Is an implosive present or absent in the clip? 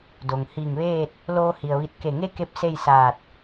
absent